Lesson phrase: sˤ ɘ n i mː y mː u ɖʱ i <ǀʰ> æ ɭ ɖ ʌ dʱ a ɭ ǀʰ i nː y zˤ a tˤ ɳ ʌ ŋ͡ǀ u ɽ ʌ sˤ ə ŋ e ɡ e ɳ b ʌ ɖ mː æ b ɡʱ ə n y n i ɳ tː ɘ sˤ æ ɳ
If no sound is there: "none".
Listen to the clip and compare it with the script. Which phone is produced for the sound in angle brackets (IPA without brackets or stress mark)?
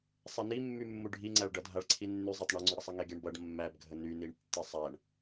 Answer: ŋ͡ǀ